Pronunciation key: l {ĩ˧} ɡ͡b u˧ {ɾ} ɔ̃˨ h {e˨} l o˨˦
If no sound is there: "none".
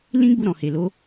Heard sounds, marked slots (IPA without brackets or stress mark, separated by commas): ĩ˦, ɾ, e˨